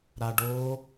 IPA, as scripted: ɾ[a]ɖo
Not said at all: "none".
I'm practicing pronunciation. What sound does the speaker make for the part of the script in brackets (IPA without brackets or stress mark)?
a